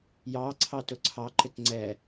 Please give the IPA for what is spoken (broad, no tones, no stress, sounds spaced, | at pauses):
j ɑ ǀʰ ɑ t ʊ ǀʰ ɑ ǃ ɪ t ŋ͡ǀ ɛ